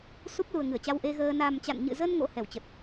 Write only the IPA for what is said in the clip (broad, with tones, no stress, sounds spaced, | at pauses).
s u˦˥ p̚ l u˨˩ ə̯ ŋ ɨ˧˩ ə̯ t͡ɕ a˧ w ʔ e˧ ɣ əː˧ n a˨˩ m t͡ɕ a̰˧˨ n ɲ ɨ̰˧˨ z ə˧ n ŋ o̰˧˥ h ɛ˧˩ w t͡ɕ ə˨˩ t̚